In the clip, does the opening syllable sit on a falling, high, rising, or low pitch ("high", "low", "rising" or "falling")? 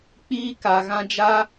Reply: high